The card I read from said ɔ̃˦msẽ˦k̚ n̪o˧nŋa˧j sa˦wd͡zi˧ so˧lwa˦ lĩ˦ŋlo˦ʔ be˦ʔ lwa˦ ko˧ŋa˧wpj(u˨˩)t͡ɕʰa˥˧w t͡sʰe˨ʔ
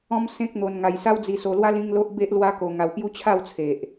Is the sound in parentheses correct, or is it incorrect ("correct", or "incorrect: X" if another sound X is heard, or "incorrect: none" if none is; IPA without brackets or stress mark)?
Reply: incorrect: u˦